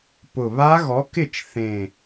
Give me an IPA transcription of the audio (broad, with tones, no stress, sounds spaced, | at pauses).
p ʊ˨˩ β a˦˥ ɣ ɔ˨˥ k ɪ˥˩ t͡ʃ θ ẽ˨˩